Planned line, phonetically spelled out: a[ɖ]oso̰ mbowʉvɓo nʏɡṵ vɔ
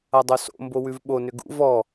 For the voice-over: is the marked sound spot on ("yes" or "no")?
no